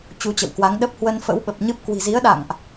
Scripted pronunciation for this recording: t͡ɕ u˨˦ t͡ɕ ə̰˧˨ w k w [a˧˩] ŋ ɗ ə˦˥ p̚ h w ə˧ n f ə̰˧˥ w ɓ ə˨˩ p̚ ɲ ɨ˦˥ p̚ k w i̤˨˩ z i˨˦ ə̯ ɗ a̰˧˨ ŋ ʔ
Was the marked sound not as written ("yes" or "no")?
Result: yes